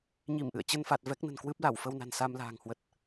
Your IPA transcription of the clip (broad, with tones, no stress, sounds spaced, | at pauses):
ɲ i˧˩ m ʔ ɨ̰˧˨ ə̯ t͡ɕ ə˧ n f a˨˩ t̚ v ɛ˦˥ k̚ n ə̤˨˩ n k w ɨ˦˥ p̚ l a˧˩ w f ə˧ w n a̤˨˩ n s a˧ m l a̤ː˨˩ ŋ h w ə˨˩ t̚